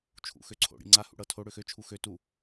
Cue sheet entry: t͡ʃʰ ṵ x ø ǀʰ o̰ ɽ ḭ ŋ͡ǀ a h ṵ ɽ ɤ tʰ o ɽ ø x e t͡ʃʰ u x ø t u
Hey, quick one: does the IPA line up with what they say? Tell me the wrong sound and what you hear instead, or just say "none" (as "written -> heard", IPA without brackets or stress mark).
e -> ø